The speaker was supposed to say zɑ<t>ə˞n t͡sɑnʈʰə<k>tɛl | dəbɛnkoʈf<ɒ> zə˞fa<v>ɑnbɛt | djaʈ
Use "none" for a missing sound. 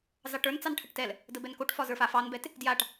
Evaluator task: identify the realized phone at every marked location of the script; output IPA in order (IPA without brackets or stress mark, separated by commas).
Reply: ʈ, ʈ, ɒ, f